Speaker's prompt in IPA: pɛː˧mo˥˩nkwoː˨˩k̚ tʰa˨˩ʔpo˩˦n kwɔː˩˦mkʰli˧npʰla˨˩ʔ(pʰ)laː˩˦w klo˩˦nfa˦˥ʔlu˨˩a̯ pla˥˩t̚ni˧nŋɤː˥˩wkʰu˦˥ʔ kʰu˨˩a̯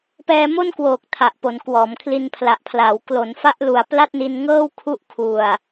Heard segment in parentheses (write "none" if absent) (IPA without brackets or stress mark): pʰ